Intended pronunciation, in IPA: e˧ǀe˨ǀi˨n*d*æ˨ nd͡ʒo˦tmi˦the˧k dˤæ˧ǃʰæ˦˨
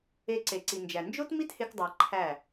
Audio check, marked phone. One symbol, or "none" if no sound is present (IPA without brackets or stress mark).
d͡ʒ